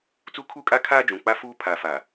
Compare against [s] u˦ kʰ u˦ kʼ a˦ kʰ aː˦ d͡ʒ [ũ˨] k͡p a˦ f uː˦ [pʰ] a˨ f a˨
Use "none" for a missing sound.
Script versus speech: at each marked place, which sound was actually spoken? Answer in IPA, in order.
t͡s, ũ˨, pʰ

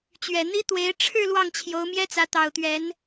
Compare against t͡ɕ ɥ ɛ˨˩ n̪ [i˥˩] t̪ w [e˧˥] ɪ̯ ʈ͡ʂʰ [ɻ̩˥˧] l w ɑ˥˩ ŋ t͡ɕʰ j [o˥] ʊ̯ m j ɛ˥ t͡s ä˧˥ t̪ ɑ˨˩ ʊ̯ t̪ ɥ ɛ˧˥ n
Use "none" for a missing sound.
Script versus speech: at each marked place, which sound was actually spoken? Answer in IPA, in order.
i˥, e˧˥, ɻ̩˥˧, o˧˥

